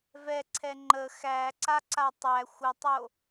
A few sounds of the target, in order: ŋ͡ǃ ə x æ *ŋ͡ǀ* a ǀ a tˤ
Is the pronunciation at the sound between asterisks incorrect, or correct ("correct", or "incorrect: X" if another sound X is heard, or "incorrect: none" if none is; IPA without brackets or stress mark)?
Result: incorrect: ǀ